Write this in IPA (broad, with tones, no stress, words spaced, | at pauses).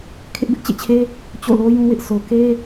kʰɪ˦ʔbɪ˦ʔt͡ɕḛ˦˨t͡ɕʰe˦ | t͡ɕo̰˦˨lo˦jũ˦wɪ˦ʔ so˨ke˦